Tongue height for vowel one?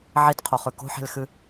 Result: high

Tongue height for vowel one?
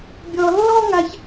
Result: mid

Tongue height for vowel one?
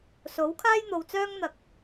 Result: mid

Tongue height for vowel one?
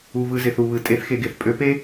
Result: high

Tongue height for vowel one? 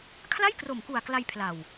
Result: low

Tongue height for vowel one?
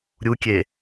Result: high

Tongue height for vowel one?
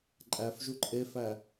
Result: low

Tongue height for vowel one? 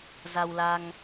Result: low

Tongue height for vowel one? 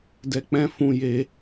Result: mid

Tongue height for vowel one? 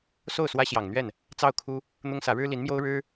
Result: mid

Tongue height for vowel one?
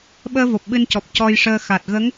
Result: mid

